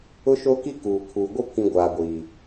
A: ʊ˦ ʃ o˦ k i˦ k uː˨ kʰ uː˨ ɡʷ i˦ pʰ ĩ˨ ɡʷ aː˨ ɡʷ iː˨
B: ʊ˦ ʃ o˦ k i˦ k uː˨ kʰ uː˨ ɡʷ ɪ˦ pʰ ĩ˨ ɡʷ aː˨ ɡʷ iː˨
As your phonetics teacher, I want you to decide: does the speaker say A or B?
B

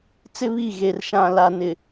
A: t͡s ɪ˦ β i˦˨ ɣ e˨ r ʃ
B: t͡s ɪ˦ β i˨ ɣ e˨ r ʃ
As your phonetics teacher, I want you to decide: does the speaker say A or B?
A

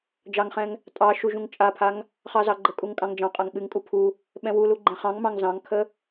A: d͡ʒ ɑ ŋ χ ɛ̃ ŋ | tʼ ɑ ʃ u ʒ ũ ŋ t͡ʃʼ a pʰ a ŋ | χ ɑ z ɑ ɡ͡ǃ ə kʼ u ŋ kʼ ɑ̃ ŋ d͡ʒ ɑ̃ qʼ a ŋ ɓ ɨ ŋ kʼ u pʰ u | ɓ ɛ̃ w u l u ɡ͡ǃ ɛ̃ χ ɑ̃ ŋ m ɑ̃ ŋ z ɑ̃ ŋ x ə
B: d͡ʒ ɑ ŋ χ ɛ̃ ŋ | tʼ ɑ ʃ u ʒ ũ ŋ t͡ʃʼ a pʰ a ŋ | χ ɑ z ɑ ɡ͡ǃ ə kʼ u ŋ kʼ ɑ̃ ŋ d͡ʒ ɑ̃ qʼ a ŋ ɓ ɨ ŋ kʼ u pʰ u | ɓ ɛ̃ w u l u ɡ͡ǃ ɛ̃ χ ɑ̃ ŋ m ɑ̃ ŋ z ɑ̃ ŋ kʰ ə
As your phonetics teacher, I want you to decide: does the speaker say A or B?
B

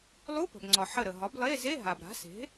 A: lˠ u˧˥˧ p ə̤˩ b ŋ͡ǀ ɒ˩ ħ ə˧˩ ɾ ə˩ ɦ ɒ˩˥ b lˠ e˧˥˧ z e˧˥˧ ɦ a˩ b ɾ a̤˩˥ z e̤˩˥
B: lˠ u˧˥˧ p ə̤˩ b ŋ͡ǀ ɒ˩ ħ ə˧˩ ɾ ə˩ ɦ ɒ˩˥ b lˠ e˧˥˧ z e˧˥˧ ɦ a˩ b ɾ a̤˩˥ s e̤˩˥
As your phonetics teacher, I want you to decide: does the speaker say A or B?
B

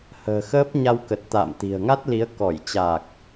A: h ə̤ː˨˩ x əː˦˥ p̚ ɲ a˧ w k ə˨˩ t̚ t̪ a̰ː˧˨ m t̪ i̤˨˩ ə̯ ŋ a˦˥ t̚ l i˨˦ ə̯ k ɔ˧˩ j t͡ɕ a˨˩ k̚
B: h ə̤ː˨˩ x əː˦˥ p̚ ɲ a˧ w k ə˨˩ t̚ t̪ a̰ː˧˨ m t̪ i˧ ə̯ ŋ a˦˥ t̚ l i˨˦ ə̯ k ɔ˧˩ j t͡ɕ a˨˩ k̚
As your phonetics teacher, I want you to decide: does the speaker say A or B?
A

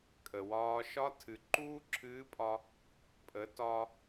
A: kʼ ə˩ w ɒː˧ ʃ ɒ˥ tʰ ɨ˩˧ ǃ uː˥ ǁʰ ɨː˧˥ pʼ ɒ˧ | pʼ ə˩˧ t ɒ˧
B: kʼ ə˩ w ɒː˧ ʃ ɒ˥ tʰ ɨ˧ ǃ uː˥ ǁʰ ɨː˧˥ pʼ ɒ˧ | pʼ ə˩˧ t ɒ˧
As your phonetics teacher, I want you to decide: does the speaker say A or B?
A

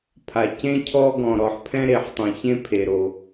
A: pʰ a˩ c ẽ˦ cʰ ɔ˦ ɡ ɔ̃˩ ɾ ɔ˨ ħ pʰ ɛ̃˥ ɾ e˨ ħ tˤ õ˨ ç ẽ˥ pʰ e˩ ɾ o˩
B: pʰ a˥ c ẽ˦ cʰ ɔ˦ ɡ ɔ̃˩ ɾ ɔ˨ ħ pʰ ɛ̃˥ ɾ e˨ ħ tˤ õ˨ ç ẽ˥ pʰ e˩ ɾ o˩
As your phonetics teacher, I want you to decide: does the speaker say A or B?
A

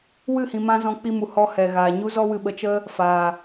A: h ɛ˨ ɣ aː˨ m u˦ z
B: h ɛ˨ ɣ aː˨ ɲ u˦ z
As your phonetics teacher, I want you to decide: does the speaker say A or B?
B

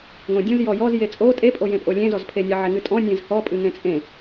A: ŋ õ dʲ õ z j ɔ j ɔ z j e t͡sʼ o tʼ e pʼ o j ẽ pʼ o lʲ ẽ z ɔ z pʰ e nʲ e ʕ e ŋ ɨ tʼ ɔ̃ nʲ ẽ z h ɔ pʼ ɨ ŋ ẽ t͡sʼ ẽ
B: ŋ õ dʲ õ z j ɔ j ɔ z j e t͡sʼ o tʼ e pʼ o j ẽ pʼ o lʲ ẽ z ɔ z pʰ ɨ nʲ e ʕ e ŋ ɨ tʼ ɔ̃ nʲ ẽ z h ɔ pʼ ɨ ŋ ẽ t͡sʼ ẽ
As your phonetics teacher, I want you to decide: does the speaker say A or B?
A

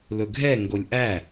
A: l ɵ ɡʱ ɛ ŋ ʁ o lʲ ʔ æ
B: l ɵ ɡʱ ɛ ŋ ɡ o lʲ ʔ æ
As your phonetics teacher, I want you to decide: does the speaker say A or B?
B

